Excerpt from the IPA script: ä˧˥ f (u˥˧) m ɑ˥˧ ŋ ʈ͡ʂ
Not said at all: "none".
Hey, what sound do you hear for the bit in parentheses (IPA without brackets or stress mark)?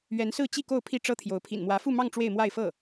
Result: u˥˧